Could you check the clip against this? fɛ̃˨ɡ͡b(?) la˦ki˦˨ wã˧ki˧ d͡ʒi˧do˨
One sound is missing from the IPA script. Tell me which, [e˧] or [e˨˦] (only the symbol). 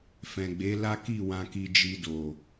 e˨˦